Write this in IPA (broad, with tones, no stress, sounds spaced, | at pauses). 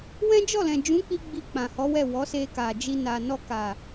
w ɛ̃˦ d͡ʒ ɔ˦˨ l ɛ̃˨ d͡ʒ ũ˨˦ k͡p i˧ ɡ͡b i˧ k͡p ã˨ h ɔ˨˦ w ɛ˦˨ w ɔ˨˦ s e˧ k a˨ d͡ʒ i˧ n a˨ n ɔ˧ k a˨